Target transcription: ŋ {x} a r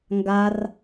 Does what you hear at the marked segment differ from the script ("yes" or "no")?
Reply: yes